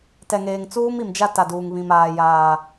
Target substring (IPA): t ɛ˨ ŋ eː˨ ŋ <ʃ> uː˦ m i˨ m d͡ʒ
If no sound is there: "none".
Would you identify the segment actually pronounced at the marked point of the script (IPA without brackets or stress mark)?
t͡s